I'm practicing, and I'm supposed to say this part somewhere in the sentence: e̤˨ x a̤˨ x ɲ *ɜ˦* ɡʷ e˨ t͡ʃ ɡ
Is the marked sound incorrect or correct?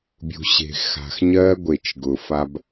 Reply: correct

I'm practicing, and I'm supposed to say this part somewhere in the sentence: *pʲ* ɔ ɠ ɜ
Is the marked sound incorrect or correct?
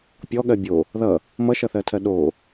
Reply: correct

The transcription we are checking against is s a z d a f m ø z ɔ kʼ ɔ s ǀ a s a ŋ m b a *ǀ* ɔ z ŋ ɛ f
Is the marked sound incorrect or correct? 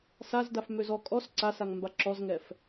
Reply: incorrect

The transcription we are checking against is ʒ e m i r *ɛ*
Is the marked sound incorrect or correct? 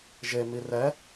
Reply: correct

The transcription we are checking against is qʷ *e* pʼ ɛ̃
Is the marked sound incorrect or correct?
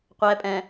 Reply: incorrect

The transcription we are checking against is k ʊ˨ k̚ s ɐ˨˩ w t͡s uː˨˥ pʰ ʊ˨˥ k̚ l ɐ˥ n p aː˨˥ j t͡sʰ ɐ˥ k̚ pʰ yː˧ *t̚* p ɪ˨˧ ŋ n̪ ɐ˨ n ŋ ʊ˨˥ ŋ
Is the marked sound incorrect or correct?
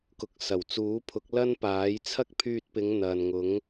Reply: correct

